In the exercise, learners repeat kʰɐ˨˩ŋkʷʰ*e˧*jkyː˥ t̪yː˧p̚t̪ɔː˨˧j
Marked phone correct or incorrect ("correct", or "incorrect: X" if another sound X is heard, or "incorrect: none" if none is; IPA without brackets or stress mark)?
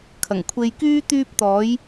correct